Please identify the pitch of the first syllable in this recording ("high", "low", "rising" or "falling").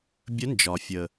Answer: rising